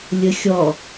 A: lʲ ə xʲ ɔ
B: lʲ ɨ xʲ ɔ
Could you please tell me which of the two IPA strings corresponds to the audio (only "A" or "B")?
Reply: A